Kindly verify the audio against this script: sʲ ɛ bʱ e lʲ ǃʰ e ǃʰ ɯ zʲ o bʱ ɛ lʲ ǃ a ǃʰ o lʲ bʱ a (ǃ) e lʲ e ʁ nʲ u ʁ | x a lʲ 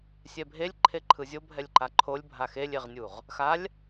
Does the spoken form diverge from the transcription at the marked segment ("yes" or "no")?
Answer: yes